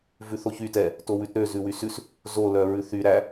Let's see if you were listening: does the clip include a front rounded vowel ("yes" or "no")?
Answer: yes